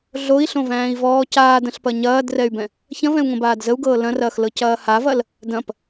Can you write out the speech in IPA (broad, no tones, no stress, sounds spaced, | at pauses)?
ɮ o i̯ ɬ õ v æ̃ː i̯ v ɔː c aː d ɐ̃ ɬ p ɐ ɲ ɐː d r ɛ y̯ b ɛ̃ | ç ɐ̃ v ɛ̃ u̯ ŋ õ b aː d z ə u̯ ɡ ɤː l ɐ̃ r ɐː x l ɤ c ɐː h a v ɐ l | d ɐ̃ p